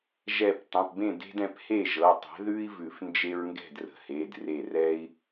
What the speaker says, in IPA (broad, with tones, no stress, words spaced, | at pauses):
ʒɛ˧˩p tˤə̃˩˧˩pbẽ˥˩de̤˦d ɛ̃˩˥phe˥˩ʒɤ˩˧˩tˤɛ̤˩˥ ðʉ˦i̯vʉ˨˩˦f nd͡ʒe˦ɹŋɡɛ̤˥˩drə̤˩˥he˩˧˩d re˧˩rɛ˦i̯